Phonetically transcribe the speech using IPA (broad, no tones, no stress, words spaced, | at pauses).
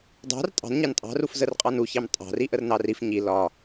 dˤɑ̤r tʼɑ̤nɲɑn tʼɑ̤ruf zərqʼɑnuçɑm tʼɑ̤ri ʔərnɑrif ɲi lɒ